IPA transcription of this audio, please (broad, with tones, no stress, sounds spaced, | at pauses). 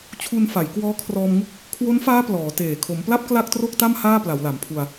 t͡ɕʰ u˧ n f a˩˦ j k w ɔː˦˥ kʰ r ɔː˧ m ŋ u˥˩ k̚ | kʰ w o˦˥ n f aː˦˥ p l ɔː˩˦ t eː˨˩ kʰ o˩˦ m p l a˥˩ p̚ k l a˥˩ k̚ t r o˥˩ k̚ t a˥˩ m h aː˥˩ p l a˩˦ w l a˩˦ m pʰ u˧ a̯